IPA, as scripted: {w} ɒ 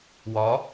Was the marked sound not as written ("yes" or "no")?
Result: no